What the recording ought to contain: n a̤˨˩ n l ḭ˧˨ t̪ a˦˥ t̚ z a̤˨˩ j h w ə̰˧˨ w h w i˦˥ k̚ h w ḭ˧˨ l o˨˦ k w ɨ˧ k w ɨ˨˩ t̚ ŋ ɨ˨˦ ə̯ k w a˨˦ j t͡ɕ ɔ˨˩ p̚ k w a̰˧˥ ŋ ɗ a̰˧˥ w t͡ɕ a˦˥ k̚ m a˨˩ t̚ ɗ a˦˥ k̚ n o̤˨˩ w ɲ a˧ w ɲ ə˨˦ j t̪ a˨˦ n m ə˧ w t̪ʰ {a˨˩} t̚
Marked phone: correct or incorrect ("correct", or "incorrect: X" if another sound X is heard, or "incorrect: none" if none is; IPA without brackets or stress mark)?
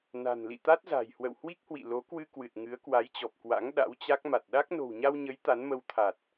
correct